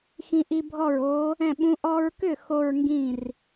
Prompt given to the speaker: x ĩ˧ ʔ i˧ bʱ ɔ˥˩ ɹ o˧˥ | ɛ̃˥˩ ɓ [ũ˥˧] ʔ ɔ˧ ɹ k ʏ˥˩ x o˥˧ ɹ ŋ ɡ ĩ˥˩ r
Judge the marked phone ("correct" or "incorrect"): incorrect